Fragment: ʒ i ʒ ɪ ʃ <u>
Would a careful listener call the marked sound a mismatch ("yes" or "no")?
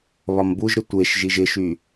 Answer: yes